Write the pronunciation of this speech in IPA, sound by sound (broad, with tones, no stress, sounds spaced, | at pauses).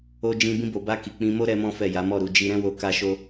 o˧ d͡ʒ ĩ˧ b ĩ˧ b o˨ b a˧ k i˨ k͡p ĩ˧ m o˦ ɾ ɛ˦ m ɔ̃˦ f ɛ˦˨ j a˨˦ m ɔ˦˨ ɾ u˨˦ d͡ʒ i˧ ɾ ɛ̃˦ w o˧ k a˦ ʃ o˦